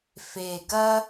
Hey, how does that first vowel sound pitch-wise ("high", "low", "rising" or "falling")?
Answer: low